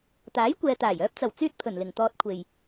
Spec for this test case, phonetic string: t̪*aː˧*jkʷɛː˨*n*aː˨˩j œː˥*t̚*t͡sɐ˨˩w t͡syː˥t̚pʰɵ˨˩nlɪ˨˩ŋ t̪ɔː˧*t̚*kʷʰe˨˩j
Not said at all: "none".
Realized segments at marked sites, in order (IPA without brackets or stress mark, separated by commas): aː˨˥, t̪, p̚, t̚